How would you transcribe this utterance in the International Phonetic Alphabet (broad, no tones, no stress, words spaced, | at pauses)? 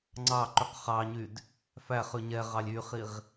ŋ͡ǀɑǃyq χɑɲyd | fæχʉ ɲɛʁɑlʲ yχiʁ